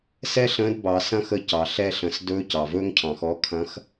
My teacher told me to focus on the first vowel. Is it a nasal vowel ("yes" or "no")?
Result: no